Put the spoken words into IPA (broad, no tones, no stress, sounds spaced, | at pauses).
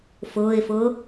f ʊː ɪ̯ f ʊː